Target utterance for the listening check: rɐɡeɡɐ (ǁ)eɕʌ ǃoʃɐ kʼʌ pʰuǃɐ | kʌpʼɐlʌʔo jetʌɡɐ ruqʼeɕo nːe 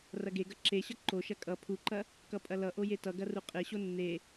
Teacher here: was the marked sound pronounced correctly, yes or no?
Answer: yes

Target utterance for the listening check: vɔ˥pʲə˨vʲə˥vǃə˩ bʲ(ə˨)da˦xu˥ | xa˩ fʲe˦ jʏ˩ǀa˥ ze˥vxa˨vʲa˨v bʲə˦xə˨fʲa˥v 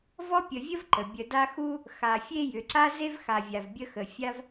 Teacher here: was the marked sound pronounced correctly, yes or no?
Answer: yes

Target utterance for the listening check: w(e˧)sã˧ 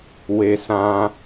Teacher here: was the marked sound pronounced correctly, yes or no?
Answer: yes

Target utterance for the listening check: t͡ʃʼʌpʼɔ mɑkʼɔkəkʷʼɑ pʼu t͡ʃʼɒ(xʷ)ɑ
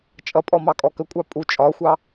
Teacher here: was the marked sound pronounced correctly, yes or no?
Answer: yes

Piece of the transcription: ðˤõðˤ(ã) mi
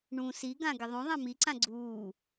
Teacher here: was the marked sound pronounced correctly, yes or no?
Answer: yes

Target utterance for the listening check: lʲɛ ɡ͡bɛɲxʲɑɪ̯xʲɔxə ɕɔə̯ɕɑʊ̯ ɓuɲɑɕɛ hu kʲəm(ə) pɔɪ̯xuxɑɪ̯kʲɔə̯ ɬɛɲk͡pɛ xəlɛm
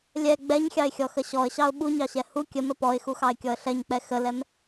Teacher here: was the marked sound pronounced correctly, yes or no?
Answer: yes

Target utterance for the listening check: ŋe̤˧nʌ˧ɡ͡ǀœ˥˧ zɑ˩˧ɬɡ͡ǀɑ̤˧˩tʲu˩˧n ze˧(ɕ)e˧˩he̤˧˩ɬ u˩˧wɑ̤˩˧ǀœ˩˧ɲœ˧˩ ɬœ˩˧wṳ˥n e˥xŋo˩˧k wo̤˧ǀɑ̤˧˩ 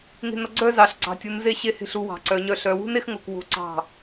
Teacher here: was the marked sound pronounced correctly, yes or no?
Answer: yes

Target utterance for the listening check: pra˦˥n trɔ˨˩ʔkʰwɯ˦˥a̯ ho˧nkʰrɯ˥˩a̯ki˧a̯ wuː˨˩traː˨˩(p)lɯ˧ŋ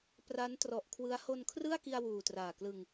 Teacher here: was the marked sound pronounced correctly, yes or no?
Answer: no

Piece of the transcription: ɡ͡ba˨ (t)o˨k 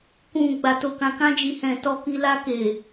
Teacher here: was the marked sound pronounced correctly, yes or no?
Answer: yes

